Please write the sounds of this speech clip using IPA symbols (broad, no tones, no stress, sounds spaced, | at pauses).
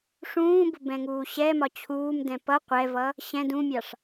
ʂ ũː b ʊ b ɛ̃ ŋ uː ɕ ɛ m ɒ t͡ɕʰ uː m d ɛ̃ p ʌ qʷ ɛ v ʌ | ɕ ɛ̃ d ũ mʲ ɑ ʂ